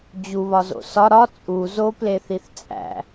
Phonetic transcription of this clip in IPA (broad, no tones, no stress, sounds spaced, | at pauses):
d͡ʑ u β ɒ z o̰ s ɒ ɾ ɒ t͡sʼ u z o p l e θ i θ t͡sʼ æ̰